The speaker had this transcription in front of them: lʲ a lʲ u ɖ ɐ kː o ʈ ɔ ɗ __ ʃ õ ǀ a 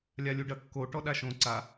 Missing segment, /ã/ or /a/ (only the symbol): a